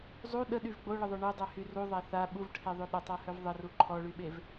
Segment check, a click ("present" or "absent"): present